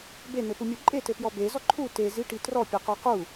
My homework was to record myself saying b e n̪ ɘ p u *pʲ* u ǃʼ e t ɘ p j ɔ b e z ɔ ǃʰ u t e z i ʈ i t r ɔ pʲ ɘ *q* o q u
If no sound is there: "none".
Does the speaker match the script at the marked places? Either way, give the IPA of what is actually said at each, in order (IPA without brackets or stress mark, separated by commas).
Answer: mʲ, q